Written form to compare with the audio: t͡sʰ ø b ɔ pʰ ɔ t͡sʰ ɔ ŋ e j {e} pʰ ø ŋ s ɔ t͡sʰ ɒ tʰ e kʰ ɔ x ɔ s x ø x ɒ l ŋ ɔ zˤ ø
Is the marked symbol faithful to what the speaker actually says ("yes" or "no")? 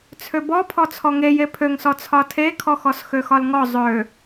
yes